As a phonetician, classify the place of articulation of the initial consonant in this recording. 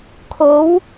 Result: velar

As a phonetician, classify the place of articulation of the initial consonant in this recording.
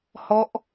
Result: glottal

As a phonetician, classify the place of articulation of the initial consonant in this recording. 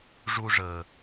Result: retroflex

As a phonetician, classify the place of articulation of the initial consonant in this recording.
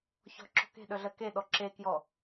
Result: palatal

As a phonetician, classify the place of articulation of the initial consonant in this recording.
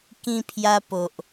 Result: velar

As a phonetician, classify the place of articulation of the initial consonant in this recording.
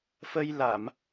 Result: labial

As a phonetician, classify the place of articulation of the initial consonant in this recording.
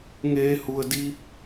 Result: velar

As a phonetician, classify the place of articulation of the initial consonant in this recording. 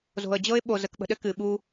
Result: alveolar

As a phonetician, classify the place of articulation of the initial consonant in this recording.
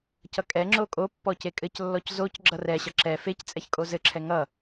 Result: palatal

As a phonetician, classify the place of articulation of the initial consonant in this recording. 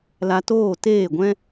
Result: alveolar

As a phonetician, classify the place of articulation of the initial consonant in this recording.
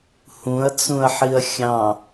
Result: glottal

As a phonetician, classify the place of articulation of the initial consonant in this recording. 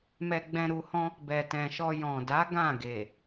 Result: labial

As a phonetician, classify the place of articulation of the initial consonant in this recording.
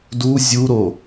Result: alveolar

